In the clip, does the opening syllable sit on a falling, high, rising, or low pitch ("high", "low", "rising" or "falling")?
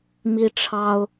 high